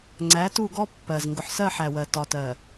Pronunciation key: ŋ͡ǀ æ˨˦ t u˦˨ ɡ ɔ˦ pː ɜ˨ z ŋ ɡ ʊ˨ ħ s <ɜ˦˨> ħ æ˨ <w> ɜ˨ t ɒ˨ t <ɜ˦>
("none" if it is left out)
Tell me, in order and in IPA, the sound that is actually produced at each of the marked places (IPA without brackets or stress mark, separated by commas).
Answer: ɜ˦˨, w, ɜ˨